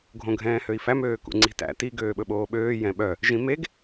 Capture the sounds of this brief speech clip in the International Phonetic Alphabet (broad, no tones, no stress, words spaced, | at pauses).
ɡʱõɡʱɛ̃ːhøi̯fæm øːkṵŋ͡ǀi̤tæ̰ ti ɡøːɓɵɓoːɓøː jɛ̃ɓœ | ʒĩmeɡ